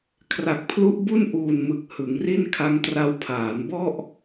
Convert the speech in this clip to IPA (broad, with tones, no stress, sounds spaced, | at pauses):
kʰ r a˨˩ k̚ pʰ l u˦˥ ʔ b u˥˩ n ʔ uː˨˩ n m ɯ˨˩ k̚ h ɯ˩˦ ŋ r i˥˩ n kʰ a˦˥ ŋ t r a˦˥ w pʰ aː˩˦ n b ɔ˥˩ ʔ